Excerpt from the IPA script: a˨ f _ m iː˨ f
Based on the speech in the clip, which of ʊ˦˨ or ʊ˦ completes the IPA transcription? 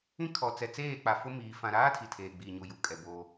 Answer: ʊ˦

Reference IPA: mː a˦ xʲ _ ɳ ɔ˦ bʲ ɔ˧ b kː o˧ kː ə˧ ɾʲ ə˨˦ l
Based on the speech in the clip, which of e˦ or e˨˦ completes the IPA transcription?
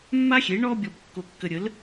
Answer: e˨˦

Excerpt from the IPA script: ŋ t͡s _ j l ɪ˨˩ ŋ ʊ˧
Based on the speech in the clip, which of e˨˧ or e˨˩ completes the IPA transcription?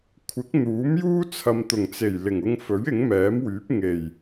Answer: e˨˩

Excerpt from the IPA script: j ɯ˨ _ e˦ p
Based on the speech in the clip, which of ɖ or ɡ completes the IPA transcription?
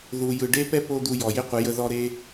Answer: ɖ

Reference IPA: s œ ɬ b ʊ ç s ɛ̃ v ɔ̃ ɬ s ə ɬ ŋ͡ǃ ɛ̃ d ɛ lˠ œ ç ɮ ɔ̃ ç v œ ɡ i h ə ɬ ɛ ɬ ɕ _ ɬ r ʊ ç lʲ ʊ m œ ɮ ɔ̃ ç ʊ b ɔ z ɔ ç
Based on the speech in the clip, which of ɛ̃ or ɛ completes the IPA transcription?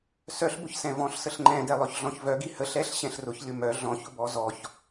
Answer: ɛ̃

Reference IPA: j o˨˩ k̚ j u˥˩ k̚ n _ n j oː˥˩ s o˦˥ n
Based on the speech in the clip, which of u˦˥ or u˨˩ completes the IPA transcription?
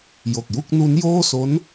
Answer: u˦˥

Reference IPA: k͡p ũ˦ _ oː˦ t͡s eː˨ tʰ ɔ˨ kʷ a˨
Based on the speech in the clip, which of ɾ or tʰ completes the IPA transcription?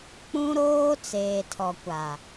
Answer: ɾ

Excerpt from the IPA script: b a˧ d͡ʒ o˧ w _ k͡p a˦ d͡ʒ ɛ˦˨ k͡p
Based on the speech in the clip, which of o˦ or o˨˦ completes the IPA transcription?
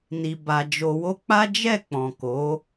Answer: o˦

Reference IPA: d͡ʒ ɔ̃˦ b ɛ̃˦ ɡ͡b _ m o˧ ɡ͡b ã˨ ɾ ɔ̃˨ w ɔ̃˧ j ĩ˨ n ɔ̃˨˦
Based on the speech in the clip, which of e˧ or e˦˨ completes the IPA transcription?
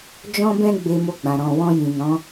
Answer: e˧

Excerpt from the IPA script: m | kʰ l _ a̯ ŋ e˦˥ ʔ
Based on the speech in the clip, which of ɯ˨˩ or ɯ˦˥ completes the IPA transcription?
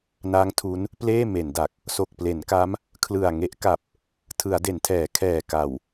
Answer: ɯ˨˩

